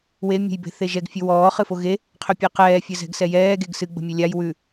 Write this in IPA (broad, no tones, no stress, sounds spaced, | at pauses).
w e mʲ ə̤ j b e̤ θ e ʒ ɛ ɡ fʲ ʉ w ɔː χ ɨ f o ɣ e | qʰ ʏ pʲ e q ɛː fʲ ɘ z ɛ̤ ɡ s ɛ j ɛː ɡ e ɡ s ɨ ɡ͡b ə̤ mʲ ɛ lʲ a j w ʉ